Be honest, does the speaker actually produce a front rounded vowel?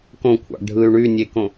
yes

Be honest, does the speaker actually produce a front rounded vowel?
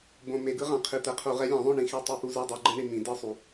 no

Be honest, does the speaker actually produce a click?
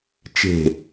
no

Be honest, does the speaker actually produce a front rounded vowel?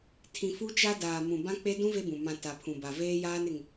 no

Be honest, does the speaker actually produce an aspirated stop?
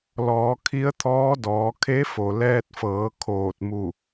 yes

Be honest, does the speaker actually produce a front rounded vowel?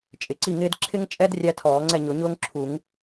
no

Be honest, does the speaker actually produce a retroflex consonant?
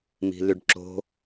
yes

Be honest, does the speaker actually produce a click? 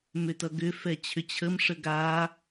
no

